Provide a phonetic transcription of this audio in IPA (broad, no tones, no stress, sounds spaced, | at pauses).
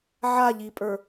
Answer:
ʕ a ʎ i pʼ ə˞